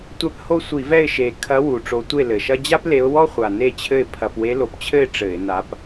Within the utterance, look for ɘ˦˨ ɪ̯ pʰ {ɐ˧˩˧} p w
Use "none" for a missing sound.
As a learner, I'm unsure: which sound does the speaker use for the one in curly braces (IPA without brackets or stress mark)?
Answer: ɐ˧˩˧